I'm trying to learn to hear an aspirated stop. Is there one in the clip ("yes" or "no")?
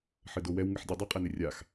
no